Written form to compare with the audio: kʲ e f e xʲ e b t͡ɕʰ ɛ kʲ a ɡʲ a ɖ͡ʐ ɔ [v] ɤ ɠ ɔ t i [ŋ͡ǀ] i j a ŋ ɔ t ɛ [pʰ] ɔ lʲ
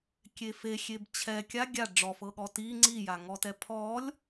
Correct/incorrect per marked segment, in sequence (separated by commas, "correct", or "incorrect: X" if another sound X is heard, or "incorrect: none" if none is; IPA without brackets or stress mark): incorrect: f, correct, correct